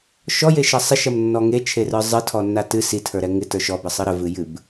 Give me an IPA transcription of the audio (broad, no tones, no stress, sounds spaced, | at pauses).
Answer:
ʃ ɔ j e ʃ ɐ sˤ ɪ ʃ ɐ m nː ɔ ŋ e t͡ʃʰ e r ə˞ zˤ ɨ tʰ ɔ nː a t ɨ s i tʰ ə˞ ɾ ɛ ŋ ɪ t ə˞ ʃ ɔ b ə sˤ ɨ ɾ ə v ɨ j ɨ b